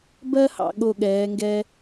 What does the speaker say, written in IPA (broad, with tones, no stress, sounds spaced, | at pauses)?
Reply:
b ɜ˥ h ɑ̰˧ ɠ o˧˩ ɠ ɛː˩˧ ŋ ɡ ɛ˧